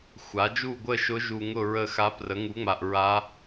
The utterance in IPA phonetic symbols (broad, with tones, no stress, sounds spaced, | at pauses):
xʷ a˩˥ d͡ʒ u˥˨ ɡʷ ə˥˨ ʃ ʊ˧˥ ʒ u˨ ŋ ʊ˥˨ ɹ ə˥˨ x a˧˥ p r ə˩˥ ŋ u˩˥ ŋ͡m a˨ ʔ ɹ a˧˥